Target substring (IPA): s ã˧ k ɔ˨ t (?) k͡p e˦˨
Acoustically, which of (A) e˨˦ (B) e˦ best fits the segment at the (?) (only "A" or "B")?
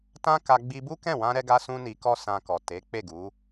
A